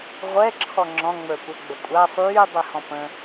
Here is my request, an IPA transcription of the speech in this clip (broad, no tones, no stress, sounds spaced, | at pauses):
ʁʷ ɛ ǁʰ ɔ ŋ͡ǁ ɔ̃ ŋ͡m ə˞ kʷ ɛ ɡ͡b ə kʷʼ a sˤ yː dˤ y h ɔ̃ p ə̃